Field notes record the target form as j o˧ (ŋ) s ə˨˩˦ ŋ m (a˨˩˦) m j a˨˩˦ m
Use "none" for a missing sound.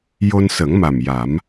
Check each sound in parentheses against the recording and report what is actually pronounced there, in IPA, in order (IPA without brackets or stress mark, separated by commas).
n, a˨˩